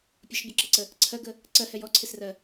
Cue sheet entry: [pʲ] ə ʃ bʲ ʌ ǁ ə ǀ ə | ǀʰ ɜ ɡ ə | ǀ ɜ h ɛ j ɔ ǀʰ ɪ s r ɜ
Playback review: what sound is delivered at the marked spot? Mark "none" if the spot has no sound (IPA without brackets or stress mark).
pʲ